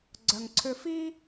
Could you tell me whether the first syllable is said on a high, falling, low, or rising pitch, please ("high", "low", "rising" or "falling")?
low